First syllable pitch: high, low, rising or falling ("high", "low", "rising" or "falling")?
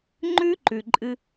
high